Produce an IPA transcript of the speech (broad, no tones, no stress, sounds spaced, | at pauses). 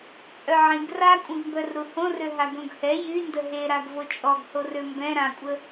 t͡sʼ œ ʕ ĩ ɡ r a kʷʼ ĩ ɡ m b œ r ɾ u h õ r ø ɦ a ɡ õ ɡ h ɛ j y n d ə ɦ e ɾ a ɡ v o t͡ʃʼ ɔ ɡ h o r ø m b ɛ̃ ɾ ã kʷʼ ə